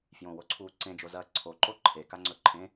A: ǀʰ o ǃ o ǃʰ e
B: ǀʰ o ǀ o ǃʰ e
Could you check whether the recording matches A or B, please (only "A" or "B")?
A